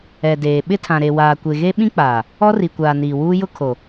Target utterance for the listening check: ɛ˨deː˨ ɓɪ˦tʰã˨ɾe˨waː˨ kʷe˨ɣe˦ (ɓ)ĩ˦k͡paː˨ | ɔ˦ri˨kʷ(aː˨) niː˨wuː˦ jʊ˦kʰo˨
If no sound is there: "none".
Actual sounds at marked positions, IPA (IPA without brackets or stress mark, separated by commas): ɓ, aː˨